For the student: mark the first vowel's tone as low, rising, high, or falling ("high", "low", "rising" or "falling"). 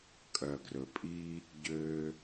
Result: low